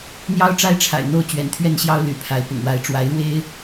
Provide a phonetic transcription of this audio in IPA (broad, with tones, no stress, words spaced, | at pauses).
n̪jɑ˦ʊ̯ʈ͡ʂa˦ɪ̯ ʈ͡ʂʰa̰˨˩ɪ̯n̪o˥˨ʊ̯ t͡ɕɥɛ̰˨˩nt̪ʰɥɛ˥˨nɕjɑ˦ʊ̯ ly̰˨˩pʰa˨˦ɪ̯ pʊ̰˨˩ŋwa˨˦ɪ̯ ʈ͡ʂwa˨˦ɪ̯ɻwe˦ɪ̯